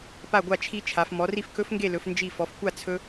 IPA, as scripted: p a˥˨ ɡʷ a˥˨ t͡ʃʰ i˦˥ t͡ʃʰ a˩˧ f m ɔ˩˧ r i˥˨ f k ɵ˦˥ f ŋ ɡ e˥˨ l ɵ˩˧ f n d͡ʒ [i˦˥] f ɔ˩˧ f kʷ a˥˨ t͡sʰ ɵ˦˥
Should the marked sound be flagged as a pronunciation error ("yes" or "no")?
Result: yes